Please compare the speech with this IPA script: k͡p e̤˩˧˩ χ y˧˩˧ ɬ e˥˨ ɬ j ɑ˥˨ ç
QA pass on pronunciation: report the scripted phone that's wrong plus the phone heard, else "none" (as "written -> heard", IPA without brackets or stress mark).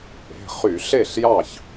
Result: none